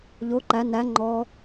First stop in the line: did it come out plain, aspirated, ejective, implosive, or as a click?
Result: click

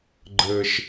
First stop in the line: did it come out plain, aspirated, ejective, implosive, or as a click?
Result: click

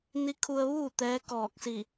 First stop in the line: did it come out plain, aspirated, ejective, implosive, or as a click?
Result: aspirated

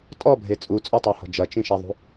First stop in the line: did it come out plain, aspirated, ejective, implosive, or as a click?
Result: ejective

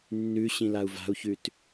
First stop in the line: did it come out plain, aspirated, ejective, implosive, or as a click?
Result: plain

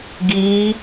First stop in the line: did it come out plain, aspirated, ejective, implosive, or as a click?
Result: plain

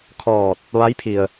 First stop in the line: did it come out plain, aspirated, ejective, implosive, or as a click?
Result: aspirated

